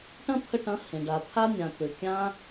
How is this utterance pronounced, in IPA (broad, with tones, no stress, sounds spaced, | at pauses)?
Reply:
ʈ ɐ̃˦ t̪ʰ ə˧ ʈ ɐ̃˨˦ h ẽ˨ ɖ a˨ t̪ʰ a˦ nʲ ã˨ t̪ ɘ˨ kʲ ã˦